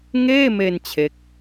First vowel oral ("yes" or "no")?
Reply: yes